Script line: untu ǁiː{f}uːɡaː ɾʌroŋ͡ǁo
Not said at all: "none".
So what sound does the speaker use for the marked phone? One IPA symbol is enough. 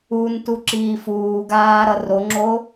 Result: f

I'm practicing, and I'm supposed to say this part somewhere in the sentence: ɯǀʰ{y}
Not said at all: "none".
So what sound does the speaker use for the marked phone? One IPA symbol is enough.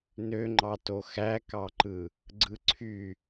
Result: y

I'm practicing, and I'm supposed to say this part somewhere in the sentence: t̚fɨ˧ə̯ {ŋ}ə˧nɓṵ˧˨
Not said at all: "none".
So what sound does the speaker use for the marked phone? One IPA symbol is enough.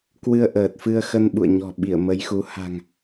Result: x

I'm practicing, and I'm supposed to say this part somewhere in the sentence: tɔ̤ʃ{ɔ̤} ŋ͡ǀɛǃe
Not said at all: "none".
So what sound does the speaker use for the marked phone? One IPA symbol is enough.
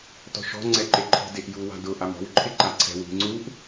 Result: ɔ̤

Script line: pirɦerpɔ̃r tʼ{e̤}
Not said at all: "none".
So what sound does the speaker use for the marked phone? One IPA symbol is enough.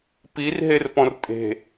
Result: e̤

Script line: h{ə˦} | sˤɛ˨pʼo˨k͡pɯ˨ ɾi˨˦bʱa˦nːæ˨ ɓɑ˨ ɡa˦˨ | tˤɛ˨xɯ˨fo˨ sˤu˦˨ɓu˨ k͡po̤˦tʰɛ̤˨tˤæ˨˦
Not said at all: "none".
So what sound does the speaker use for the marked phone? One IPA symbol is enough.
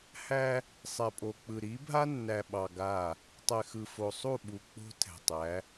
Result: æ˦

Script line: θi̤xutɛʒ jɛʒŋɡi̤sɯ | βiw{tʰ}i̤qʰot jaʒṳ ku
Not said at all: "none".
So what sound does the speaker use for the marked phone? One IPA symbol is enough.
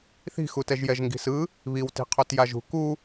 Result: t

